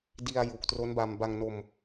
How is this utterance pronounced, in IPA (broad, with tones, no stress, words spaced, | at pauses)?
di˧a̯ ju˨˩k̚tro˦˥nba˧m ba˧ŋno˧m